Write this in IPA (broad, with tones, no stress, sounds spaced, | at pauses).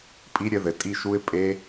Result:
pʼ i˦˥ ɾʲ ɘ˦˥ ð ɘ˨ tʼ i˥˩ ʃ u˦˥ ɪ̯ pʼ e˦˥